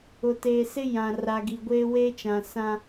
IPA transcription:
ʊ˨teː˨sɪ˦ jã˨ ra˨ɡi˨ ɡʷeː˦weː˦t͡ʃã˨ sã˦

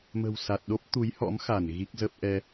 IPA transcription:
mə̤˨˩wsa˨˩t̚ɗo˦˥p̚ t̪u˨˦jhɔ̰˧˥mxa˧˩n ɣi˦˥k̚zə˦˥p̚ ʔɛ˧

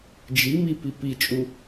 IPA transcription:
d͡ʒimi pipit͡ʃʼu

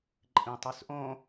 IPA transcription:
ǃʼĩtˤysʔõ

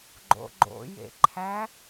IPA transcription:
ɡ͡ǃo̰ɡ͡ǃo̰ jḛǃʰæ

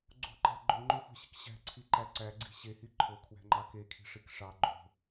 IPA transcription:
ɡ͡ǀo̤ǃæ̤ ɡ͡ǃoŋ͡ǃoxʷæ̤ɕi̤k ɕæ̤ǀʰiǃæ ǀæɡ͡ǀi̤ ɕehi ǃʰokʰwæ̤ŋ͡ǃɑ kekʰi̤ʂik ʂɑ ɡ͡ǃo̤

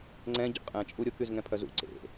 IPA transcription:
ŋ͡ǀɛ̃ ɟo̰qʼɛ̃t͡ʃʼu ɾʲokyz ŋɛ̃pʰœzṵ ǀḛ

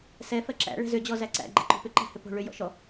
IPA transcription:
sɛ fɜǁæ̰ ɭɛ̤zʏ d͡ʑɔzæǀæ̰ ɡ͡ǃɛ̰ǃo̤pʏ ǃæ̤hʏpo̤ ɭʏ jɔ̰ʃɔ

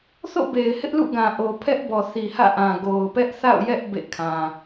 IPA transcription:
θo̰˦˨be˨ɪ̯ hɪ˦ʔlṵ˦˨ɡã˨ ʔo˨pʰɛ˦ʔbɔ˨ θi˨hä̰˦˨ʔã˨ ɡo˨ʊ̯pɛ˦ʔθa̰˦˨ʊ̯jɛ˦ʔ bḛ˦˨kʰã˨

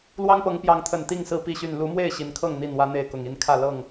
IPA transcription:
lwɑ˦ŋpɤ˨˦ŋpjɑ˨˦ŋt̪ʰə˨˩n t̪i˥˨ŋsɹ̩˥˨pi˥˨ɕy˥˨n lu˨˦mwe˥˨ɪ̯ ɕi˨˦nkʰɤ˥˨ŋ n̪i˥˨nwä˦n̪e˥˨ɪ̯ kʊ˨˩ŋi˥˨nkʰä˥˨ lɤ˥˨ŋ

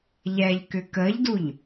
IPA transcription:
ʎɛʎkʏ kəʎduʎ

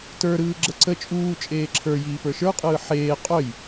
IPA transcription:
tə˞ɾɯː ɡ͡ǁəǀə t͡ʃʼuː t͡ʃʼeːǁʰə˞ jiːpə˞ʃə˞qʼɯː ħeː qʼœj

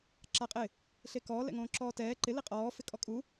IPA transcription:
ǁaqʼɪ | ɬekɔː lɛ̰ŋõːǁɔːtɛː ǃɪ liqʼɔː fɪkʼɔkʼu

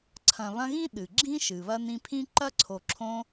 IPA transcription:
ǀʰɐ̃˨ βɐ̃˦ɣĩ˥ ɗɨ˩ɡ͡ǁĩ˥ ʃɨ˩βɐ˦nĩ˦pʰĩ˥ ǃɐ˥ǀʰo˨ǁʰõ˦

